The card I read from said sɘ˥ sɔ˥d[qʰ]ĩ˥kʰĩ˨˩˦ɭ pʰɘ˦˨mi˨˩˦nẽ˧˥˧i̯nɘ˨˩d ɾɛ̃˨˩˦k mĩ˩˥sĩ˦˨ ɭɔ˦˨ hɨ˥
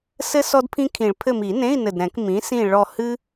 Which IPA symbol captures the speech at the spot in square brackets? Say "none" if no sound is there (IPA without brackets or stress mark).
pʰ